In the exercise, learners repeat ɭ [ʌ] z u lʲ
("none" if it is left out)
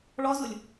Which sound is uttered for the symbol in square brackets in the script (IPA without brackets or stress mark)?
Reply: ɔ